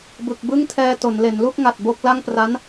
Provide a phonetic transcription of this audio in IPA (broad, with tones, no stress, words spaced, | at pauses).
bɯ˨˩k̚bɯ˥˩ŋtʰɛː˧ to˩˦n le˩˦nlu˥˩k̚ŋa˨˩t̚ bo˥˩k̚ la˥˩ŋpra˦˥n